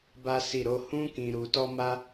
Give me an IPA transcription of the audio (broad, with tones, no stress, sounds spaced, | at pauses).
b a˦ s i˦˨ ɾ o˧ h ũ˦ k ĩ˧ ɾ u˧ t ɔ˦ m a˦